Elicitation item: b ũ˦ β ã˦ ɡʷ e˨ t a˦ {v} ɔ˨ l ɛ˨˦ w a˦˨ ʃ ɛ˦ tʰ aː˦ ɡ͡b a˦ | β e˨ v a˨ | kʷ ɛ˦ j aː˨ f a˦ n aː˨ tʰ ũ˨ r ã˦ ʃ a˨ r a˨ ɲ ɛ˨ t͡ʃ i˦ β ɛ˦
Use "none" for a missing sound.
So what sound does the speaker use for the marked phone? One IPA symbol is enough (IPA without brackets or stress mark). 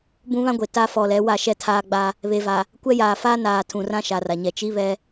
f